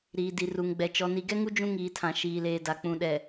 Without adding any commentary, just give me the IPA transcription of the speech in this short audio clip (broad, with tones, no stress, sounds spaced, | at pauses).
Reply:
ɾ iː˨ d i˨ r u˨ ŋ ɡ͡b ɛ˨ t͡ʃ ɔ˨ n i˨ ɡ ɛ˦ ŋ u˦ d͡ʒ ũ˦ ŋ iː˨ tʰ ã˨ ʃ iː˨ l eː˨ d a˨ k͡p ũ˨ ɗ ɛ˨